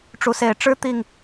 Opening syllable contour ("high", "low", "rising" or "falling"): rising